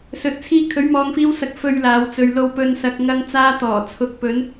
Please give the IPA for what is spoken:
s ɵ˨ t̚ t͡sʰ iː˧ kʰ ɵ˨˥ ɥ m ɔː˨ ŋ f iː˧ w s ɐ˨ k̚ f ɵ˨ ɥ l aː˨˧ w t͡s ɵ˨ ɥ l o˧ w p ɵ˧ n s ɐ˨ k̚ ŋ ɐ˧ ŋ t͡s aː˧ t̪ ɔː˨˩ t͡sʰ ʊ˨ k̚ p ɵ˨˧ n

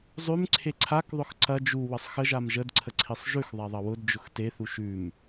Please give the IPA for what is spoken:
zˤ ʉ m ǀʰ e ǀʰ a k ðˤ ʊ x ǀ ɐ d͡ʒ u w ə sˤ x ə ʒ a m ʒ ə d ǀʰ ə ǀʰ i sˤ ʒ ʉ x ðˤ a ðˤ ɐ w ʊ d d͡ʒ ʊ x t e θ u ʃ ʉ m

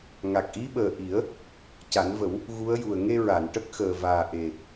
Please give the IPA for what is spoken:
ŋ a˨˩ k̚ ʔ i˧˥ ɓ əː˨˩ ʔ i˨˩˦ ə̯ | c a˨˩˦ n v ə˨˩˦ w | ɣ u˧˥ ə̯ j u˨˩ ə̯ ŋ e˧ ɹ a˨˩˨ n ʈ ə˦˥ k̚ x əː˨˩ v aː˨˩ ʔ e˨˩

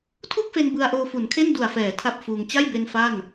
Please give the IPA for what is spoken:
tʰ u˥˩ k̚ f e˧ n b ɯ˧ a̯ ʔ oː˧ f u˩˦ n kʰ e˥˩ n d u˨˩ a̯ f ɛː˩˦ tʰ a˦˥ p̚ f uː˧ ŋ t͡ɕ a˥˩ j b e˧ n f a˥˩ n

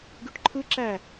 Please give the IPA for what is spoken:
ɡ y ʈ ǃʰ ɯ ǁ æ

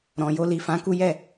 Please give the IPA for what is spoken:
ɾ ɔ̃˨ j o˧ l i˨ f ã˨˦ k u˦ j ɛ˦˨

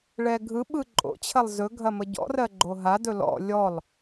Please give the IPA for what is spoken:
ɭ ɛ ɡʱ ɯ ɓ ɯ ǃʼ o̰ t͡ɕʰ ɐ lˠ z ɵ ɡʱ ɐ m ə ɟ ɔ̰ r ɜ ɡ͡ǃ o ɦ a d ɵ l ɔ̰ lʲ ɔ lˠ

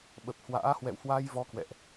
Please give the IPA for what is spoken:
ɓ ə˨˩ p̚ h w a̰ː˧˥ h w ɛ̰˧˨ w h w a˧ j v ɔ˨˦ k w ɛ̰˧˨ ʔ

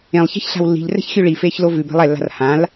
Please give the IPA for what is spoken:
ẽ lˠ ç ɛ̤ ç ɬ a̤ w lː i̤ ʎ r ɛ̤ ç xʲ ʉ ɭ i f eː ç l o v ʉ b ɛ̤ lˠ ɛ lː a̤ r h ã l

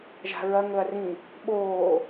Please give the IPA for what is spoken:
ʒ a̤ ɹ ɐ ŋ ɵ ɐ̯ r ĩ | ɓ oː

